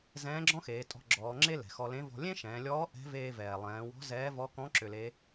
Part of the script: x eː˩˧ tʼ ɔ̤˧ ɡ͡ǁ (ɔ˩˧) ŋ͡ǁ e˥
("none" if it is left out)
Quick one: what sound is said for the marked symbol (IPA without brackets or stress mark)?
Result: ɔː˩˧